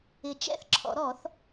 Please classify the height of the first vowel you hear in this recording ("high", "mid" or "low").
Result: high